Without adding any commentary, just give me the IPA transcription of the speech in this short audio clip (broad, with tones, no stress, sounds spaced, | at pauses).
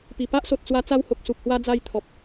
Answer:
p i˨˩ p a˦ ʔ s o˨ t̚ t͡s w a˧ t͡s a˧ w h o˨ k̚ s u˨ p̚ h w a˧ d͡z a˧ j t̪ʰ ɔ˨ p̚